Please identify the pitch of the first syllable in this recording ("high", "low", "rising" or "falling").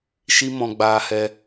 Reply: high